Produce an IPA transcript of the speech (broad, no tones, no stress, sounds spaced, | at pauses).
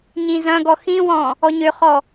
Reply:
ɲ ĩ z ɐ̃ ɡ ɔ x ĩ w ɔ̃ | ɔ ɲ ø χ ɔ